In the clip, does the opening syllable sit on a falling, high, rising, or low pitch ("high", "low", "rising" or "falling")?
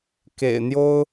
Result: low